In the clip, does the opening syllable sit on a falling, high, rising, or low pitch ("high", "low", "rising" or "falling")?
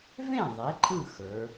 falling